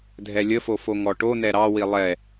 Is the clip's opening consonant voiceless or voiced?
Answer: voiced